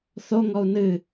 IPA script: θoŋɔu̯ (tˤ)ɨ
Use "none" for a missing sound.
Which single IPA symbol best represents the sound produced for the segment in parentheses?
n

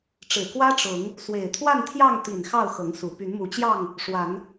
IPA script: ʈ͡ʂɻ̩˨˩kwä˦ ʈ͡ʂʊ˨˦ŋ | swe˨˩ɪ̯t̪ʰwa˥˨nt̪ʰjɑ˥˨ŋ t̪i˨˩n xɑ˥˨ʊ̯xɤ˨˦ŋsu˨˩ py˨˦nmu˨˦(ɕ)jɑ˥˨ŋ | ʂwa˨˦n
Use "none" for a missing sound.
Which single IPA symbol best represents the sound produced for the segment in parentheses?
t͡ɕ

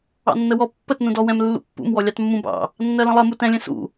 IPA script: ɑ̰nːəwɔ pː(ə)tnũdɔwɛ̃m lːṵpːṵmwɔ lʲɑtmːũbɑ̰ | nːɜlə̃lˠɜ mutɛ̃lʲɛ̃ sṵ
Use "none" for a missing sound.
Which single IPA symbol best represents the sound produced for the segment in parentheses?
ə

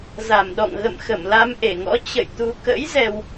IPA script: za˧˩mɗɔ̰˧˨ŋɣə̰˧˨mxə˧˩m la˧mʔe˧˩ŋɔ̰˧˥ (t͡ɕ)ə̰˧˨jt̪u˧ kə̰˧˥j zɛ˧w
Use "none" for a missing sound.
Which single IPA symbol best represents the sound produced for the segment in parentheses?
t͡ɕ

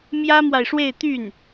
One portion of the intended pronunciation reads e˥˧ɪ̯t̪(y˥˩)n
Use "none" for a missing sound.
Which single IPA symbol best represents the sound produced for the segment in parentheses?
y˥˩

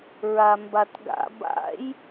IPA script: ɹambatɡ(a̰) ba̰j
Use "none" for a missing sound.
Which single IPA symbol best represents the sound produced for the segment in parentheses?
a̰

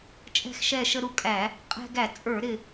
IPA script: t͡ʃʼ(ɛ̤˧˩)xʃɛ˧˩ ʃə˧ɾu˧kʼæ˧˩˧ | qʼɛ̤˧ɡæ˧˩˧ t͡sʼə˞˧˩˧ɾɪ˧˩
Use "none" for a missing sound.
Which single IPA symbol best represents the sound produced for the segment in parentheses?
ɛ̤˧˩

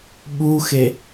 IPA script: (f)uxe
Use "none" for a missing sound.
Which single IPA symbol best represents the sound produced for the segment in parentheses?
ɓ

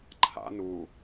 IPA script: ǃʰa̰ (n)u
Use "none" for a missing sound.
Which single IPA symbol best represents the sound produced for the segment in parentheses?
n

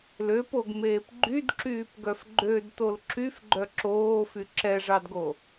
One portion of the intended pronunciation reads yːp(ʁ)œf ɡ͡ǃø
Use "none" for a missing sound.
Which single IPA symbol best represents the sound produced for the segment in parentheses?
ɡ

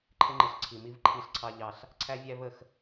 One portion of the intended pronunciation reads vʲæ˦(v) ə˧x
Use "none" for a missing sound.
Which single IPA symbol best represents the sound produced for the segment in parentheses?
v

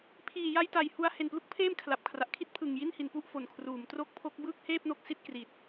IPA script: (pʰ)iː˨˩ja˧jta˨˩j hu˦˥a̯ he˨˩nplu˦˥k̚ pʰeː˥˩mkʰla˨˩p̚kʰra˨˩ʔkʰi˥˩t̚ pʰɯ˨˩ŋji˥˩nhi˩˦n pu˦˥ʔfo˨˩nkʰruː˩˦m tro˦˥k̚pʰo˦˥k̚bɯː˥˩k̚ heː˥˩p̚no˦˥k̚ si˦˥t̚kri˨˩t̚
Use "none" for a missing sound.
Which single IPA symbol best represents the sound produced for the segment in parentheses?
pʰ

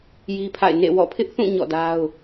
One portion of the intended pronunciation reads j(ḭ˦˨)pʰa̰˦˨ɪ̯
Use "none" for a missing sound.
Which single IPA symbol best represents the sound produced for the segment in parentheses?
i˦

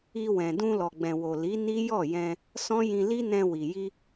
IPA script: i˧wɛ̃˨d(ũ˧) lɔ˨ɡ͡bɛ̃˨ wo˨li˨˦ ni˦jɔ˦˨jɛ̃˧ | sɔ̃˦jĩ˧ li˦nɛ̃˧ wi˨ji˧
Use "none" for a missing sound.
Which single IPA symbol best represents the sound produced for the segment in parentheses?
ũ˧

